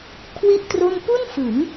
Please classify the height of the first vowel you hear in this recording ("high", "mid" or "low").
high